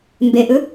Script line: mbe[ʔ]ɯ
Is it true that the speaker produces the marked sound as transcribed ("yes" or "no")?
yes